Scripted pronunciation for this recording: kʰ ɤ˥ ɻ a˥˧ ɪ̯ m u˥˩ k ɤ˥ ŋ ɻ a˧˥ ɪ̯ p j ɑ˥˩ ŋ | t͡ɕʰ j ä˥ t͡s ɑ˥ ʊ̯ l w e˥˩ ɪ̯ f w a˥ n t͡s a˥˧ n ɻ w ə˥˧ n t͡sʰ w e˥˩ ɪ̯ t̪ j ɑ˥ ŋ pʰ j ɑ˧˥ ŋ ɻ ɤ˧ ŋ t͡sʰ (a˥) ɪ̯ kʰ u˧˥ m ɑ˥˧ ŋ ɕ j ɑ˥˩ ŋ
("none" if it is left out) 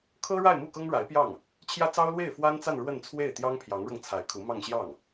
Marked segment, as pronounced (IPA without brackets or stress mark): a˧˥